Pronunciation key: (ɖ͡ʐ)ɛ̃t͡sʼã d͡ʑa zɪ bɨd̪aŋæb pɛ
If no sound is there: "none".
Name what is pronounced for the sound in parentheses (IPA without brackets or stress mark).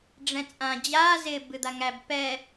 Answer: ɖ͡ʐ